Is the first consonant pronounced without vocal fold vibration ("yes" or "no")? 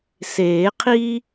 yes